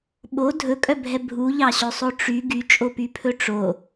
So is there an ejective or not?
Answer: yes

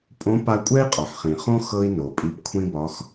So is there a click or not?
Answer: no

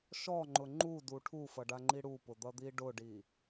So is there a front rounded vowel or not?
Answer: no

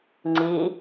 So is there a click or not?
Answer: yes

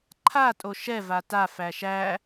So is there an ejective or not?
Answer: yes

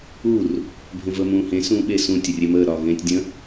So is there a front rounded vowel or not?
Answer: no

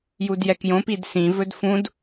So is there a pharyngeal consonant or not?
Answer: no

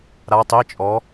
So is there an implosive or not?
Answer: no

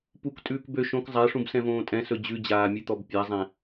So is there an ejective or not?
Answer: yes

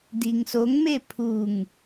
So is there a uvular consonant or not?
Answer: no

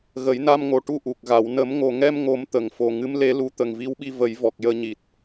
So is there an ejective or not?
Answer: no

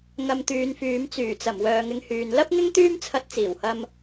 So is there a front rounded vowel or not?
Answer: yes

